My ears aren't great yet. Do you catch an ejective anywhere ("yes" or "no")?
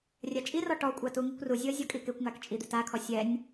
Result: yes